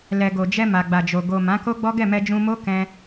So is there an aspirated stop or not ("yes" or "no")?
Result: no